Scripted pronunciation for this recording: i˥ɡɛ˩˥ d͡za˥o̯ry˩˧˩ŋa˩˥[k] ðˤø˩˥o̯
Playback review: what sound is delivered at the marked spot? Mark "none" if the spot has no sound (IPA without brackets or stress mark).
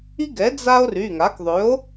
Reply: k